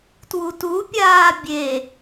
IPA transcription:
t w u t u pʲ aː bʲ e

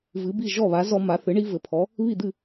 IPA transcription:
v ɨ˩˥ b i˥˩ ʒ ɔ˥˩ β a˩˥ z ɔ˦ m a˩˥ θ ɨ˩˥ ɳ i˦ v ɘ˩˥ pʰ ɔ˩˥ | β i˥˩ d̪ ɨ˥˩

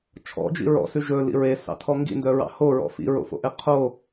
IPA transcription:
t͡ʃʰ ɔ̰ d͡ʒ ḭ ɹ ɔ̰ s ʉ ʒ ɵ l ḭ ɹ e s ɑ̰ tʰ ɔ ŋ ɡ ḭ n d œ ɹ ɑ̰ h o ɹ ɔ̰ f ḭ ɹ o̰ f o̰ ʔ e qʰ o

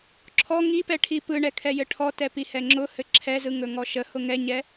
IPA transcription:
ǁʰ ɔ ŋ i p ɛ ʈʰ i p ɯ ɳ ɛ kʰ ɛ j ɘ ʈʰ ɔ t ɛ p i h ɛ ŋ͡ǁ ʊ h ɘ ǁʰ ɛ z ɯ ŋ ɵ ŋ ɔ ʃ ə h ʊ ŋ ɛ ɲ ɛ

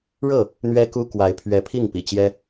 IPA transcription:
ɻ ɤ˥˨ | n̪ ɥ ɛ˦ k u˦ k w a˨˦ ɪ̯ pʰ ɥ ɛ˨˦ pʰ i˥˨ ŋ p ḭ˨˩ t͡ɕ j ɛ˦

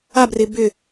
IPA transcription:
a b r ɪ b ʏ

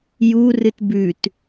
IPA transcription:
j u r ɨ t b ʉ t

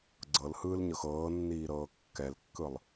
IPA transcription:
ɡ͡ǀ ɤ l h ɯː l ɲ ɤ x ɤː nː iː ɾ ɤː kː ɛ l kː ɯ lˠ

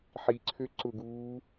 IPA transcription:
ħ i ǀʰ ø ǀ ʊ ɡ uː

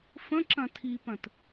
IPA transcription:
f ə̃ ǁ ɐ̃ tʰ i p ɐ̃ t

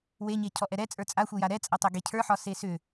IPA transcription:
w e ɲ e cʰ ɔ ʔ ɛ ɾ ɛ t͡sʼ ə˞ t͡sʼ a xʷ e j a ɾ ɛ t͡sʼ ɐ tˤ e ɡ e cʰ ə˞ ħ ɒ s e s ʏ

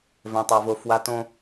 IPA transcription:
v ɛ̃˦ tˤ a˦ v o˦ f w a˦ t õ˦

